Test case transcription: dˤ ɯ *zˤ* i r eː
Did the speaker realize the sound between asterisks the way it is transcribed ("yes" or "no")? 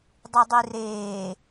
no